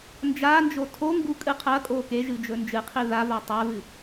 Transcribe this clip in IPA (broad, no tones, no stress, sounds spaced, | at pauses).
n d͡ʒ a n d͡ʒ o tʰ o ŋ ɡ u kʼ ɨ qʰ ɐ kʼ o k e ʒ ɨ d͡ʒ ɵ n d͡ʒ ɨ qʰ i ð a v a tˤ a v ɨ